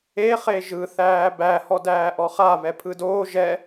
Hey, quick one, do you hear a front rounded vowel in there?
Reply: no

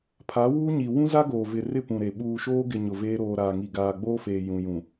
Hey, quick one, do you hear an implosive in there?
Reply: yes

